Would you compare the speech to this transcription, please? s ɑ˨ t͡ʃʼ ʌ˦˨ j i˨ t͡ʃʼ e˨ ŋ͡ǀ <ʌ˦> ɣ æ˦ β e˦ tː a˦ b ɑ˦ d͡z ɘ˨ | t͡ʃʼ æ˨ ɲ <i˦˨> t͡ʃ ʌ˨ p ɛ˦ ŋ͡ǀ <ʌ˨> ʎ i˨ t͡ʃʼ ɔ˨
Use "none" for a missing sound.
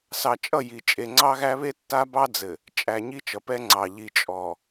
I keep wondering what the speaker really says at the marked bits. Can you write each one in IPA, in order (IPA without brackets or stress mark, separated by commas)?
ɑ˦, i˦, ɑ˨